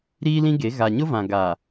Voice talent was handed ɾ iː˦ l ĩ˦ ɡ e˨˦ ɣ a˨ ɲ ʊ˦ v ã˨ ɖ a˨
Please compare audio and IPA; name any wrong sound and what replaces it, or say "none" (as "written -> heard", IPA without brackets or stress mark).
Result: ɖ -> ɡ